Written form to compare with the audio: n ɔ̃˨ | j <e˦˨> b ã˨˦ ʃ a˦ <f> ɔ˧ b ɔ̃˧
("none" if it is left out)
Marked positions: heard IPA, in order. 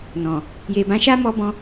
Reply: e˨, m

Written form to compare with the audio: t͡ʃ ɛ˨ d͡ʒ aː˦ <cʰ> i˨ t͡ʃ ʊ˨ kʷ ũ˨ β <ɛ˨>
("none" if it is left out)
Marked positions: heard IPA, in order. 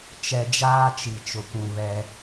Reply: t͡ʃ, ɛ˦

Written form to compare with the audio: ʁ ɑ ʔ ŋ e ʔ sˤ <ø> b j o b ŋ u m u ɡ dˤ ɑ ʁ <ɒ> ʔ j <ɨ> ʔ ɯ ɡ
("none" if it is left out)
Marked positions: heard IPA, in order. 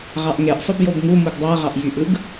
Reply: ø, ɑ, y

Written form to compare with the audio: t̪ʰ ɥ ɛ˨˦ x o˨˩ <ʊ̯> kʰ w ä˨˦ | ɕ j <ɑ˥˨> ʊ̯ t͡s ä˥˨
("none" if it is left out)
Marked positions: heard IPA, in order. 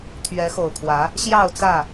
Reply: ʊ̯, ɑ˥˨

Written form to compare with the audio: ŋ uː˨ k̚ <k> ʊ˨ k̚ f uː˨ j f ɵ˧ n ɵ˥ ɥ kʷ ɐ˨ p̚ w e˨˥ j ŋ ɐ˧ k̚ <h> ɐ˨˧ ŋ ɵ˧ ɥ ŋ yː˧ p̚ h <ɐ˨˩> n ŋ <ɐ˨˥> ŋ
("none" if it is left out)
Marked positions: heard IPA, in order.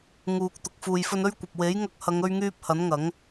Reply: t̪, h, ɐ˨˥, ɐ˨˥

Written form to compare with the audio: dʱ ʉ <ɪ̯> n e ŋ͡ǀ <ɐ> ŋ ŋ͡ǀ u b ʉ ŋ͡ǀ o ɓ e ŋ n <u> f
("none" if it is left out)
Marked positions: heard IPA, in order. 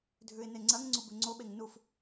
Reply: ɪ̯, ɐ, u

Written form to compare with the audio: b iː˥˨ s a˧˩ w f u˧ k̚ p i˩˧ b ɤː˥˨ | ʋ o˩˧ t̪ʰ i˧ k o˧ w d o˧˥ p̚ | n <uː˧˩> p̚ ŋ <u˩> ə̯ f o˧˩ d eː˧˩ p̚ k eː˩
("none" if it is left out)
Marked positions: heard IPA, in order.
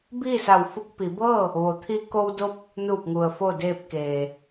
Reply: uː˧˩, u˩

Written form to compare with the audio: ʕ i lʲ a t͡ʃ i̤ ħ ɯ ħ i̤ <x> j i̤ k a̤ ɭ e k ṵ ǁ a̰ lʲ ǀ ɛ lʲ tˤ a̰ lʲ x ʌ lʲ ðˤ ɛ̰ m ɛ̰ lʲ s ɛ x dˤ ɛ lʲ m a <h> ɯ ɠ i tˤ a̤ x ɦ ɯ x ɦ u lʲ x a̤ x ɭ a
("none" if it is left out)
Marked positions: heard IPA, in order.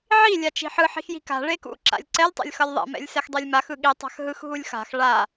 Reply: x, x

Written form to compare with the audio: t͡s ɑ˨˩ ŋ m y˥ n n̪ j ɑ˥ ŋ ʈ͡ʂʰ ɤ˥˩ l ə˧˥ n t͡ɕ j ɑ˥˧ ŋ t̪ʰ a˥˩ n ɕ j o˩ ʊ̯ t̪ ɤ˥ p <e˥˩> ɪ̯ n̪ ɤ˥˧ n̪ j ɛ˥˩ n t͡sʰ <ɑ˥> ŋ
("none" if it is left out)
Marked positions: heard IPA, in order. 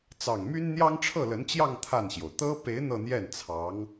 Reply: e˧˥, ɑ˧˥

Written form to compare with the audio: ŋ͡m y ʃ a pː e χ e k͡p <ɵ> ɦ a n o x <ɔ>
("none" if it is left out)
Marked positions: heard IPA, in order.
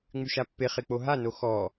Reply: o, ɔ

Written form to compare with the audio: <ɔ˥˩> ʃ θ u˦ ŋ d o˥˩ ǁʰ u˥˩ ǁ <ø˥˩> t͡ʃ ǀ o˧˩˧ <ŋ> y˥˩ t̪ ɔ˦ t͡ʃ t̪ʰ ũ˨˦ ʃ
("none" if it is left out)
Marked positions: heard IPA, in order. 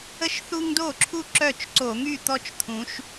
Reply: ə˥˩, œ˥˩, ŋ

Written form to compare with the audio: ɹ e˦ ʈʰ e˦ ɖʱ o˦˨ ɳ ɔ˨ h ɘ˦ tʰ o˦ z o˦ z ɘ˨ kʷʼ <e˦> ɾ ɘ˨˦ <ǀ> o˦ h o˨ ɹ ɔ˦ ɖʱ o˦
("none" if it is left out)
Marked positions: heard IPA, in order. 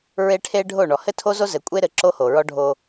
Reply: e˦, ǁ

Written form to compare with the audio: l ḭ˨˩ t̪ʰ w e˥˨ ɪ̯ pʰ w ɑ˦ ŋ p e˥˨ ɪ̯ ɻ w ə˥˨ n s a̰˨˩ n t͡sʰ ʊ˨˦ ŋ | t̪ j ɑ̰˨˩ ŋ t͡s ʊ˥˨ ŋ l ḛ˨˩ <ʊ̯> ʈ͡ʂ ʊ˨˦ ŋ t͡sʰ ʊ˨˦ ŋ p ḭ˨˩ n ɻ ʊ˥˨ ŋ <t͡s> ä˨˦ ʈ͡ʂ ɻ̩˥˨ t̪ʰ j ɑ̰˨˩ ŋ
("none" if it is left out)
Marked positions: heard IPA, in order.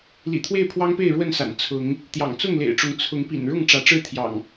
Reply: ɪ̯, ʈ͡ʂ

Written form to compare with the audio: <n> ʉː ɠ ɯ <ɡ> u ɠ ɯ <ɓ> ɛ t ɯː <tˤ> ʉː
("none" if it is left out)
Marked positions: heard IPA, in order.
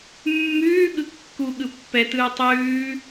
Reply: mː, kː, pː, tˤ

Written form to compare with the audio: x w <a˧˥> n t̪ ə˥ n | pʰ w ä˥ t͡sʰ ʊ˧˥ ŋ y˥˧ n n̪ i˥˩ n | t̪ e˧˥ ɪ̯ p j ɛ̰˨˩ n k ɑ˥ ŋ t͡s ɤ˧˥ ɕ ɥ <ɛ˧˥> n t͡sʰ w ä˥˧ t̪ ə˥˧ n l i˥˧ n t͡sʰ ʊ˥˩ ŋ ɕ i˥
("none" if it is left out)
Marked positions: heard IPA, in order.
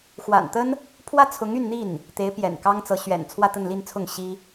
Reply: a̰˨˩, ɛ̰˨˩

